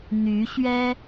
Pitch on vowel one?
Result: rising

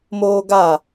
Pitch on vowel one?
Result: high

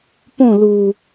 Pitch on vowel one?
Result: falling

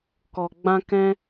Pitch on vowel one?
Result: low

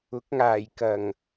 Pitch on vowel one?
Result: rising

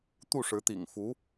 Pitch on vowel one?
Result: falling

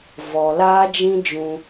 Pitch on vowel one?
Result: low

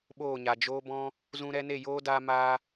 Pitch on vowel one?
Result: falling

